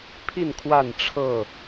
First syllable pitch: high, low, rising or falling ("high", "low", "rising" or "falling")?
falling